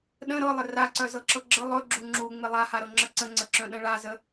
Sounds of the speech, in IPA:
ɗ ə̃ ɾ ɤ lˠ ɪ r a ǀ œ z ɤ ǁ ɤ ɡ͡ǁ ə lˠ ɵ ɡ͡ǁ u ŋ͡ǁ u ŋ͡m ɪ lˠ a h a ɾ ɤ ŋ͡ǁ ə ǀ ə̃ ŋ͡ǀ ə ǁ œ̃ ɗ ə̃ ɭ a z ə

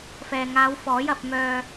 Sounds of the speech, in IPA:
f ɛː˨ ŋ aː˨˧ w f ɔː˨˥ j ɐ˧ p̚ m œː˧

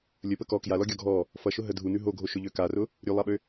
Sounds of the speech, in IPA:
lʲ ə p ə k ɔ k j a l ɔ ɡʲ ɔ ɡʱ ɔ | f ʌ ʃ ʊ ɦ ə dʱ u n ʉ ɦ o ɡʱ o ʃ ʊ ʎ ø k a r ʊ | ɾʲ ʉ lˠ a ɓ ø

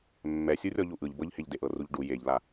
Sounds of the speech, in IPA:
mː ɛ sʲ u rʲ ɔ ʎ u ʔ ɯ ʎ b ɤ ʎ h e ʎ d e ʔ ɤ r u ʎ ɖ u j e ʎ l a

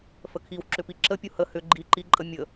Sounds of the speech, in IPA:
f ə kʰ i w ǁ ʏ p i ǁ ə pʲ u h ə h ʏ ɡ͡ǃ i ǃ i ǃʼ ə mʲ ə

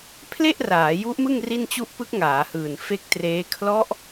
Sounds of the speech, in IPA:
pʰ l e˥˩ ʔ r aː˩˦ j u˦˥ ʔ m ɯ˥˩ ŋ r i˥˩ n t͡ɕ u˥˩ ʔ p ɯ˦˥ k̚ ŋ aː˩˦ h ɯː˨˩ n f e˦˥ k̚ t r eː˦˥ kʰ l ɔ˦˥ ʔ

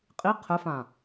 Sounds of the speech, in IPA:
qʼ i qʰ ə f ã

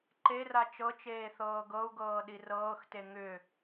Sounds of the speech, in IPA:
ǃ e r a t͡ʃ ɤ t͡ʃ eː θ ɤː ɡ ɤ u̯ ɡ ɤː ɗ i r ɤː x t e ŋ ʏ

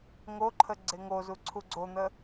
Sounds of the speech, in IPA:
ŋ o ǃʰ ə ɡ͡ǀ e ŋ o z u ǀʰ u ɡ͡ǀ o n̪ ə

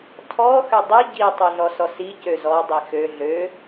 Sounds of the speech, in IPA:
tʰ ɔ x ø dˤ i ɟ i tˤ ø ɮ ɔ s ɔ s i c ø z ɔ dˤ i x ø ɮ ø

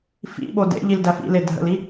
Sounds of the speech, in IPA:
f ḭ ɓ o d ḛ ʎ i l d æ f ḭ l e dʱ ə̰ l i

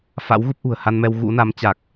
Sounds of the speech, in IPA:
f a̰˧˥ w ɣ u˦˥ p̚ ʔ ṳ˨˩ ə̯ h a˧ n m ɛ˧ w ɣ ṵ˧˥ n a˨˦ m t͡ɕ a˨˩ k̚

